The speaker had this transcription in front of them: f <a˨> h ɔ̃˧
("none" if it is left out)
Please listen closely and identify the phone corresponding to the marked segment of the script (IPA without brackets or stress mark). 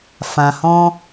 ã˨